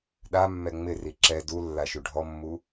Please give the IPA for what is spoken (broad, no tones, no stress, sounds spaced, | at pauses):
ɗ a mː ɛ ŋ͡m ɪ r i ǁ ɛ d u lː a ʃ u ɖʱ ɔ mː u